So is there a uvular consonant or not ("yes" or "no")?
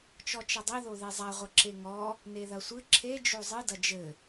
yes